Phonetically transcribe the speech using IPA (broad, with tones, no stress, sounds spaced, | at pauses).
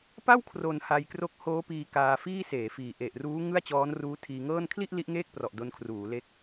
p a˥˩ w kʰ r o˨˩ n h a˧ j k r o˦˥ k̚ h oː˦˥ p iː˧ k aː˧ f iː˥˩ s eː˩˦ f iː˨˩ ʔ e˨˩ ʔ r uː˦˥ ŋ ɯ˥˩ a̯ t͡ɕ ɔː˦˥ n r uː˦˥ tʰ iː˧ ŋ ɤː˥˩ n kʰ l i˥˩ ʔ l i˦˥ ʔ ŋ eː˥˩ k̚ p r ɔ˨˩ ʔ d o˧ n kʰ r uː˩˦ l e˦˥ k̚